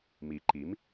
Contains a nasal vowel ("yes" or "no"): no